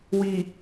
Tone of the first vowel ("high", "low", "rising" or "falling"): low